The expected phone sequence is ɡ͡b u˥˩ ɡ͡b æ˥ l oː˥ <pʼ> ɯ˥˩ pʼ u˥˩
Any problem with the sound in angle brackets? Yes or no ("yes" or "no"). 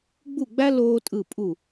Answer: yes